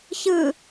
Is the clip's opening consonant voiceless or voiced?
voiceless